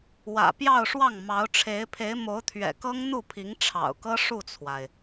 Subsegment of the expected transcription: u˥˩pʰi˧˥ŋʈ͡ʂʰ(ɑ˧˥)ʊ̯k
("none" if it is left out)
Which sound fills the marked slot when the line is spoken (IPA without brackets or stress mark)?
ɑ̰˨˩